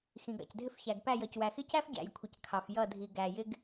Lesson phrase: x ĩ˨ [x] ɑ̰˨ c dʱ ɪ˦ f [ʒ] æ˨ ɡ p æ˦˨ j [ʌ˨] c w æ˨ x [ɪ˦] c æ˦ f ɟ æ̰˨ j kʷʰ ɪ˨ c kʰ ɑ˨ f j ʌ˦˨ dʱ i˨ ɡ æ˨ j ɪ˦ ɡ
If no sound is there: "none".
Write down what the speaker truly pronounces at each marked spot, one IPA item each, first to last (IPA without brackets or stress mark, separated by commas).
ɡ, ç, ʌ˨, ɪ˦